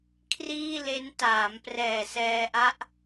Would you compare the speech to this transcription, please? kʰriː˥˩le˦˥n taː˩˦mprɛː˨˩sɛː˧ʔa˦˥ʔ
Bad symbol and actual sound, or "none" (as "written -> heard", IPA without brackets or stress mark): none